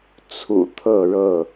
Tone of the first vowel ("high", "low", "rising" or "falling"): low